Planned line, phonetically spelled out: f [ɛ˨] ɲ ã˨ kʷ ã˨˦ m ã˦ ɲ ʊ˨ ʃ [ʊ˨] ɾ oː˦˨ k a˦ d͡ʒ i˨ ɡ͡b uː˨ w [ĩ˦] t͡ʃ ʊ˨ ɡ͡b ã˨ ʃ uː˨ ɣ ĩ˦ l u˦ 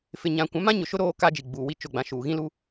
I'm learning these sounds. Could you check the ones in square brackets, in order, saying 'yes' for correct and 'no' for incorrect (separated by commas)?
no, no, no